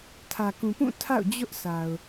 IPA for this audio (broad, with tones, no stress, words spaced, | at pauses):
tʰä˨kũ˨pũ˦˨ tʰa̰˦˨ʊ̯d͡ʑʊ˦ʔsa˨ʊ̯